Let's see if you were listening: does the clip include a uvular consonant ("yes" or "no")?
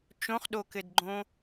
yes